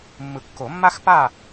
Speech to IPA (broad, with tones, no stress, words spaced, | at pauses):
mːɯ˨˩˦kːo˨˩˦mːa˥xpa˥˨